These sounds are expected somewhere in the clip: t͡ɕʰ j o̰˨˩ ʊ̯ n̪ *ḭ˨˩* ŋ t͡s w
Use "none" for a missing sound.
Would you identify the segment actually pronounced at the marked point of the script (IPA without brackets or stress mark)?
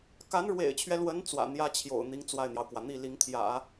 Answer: i˧˥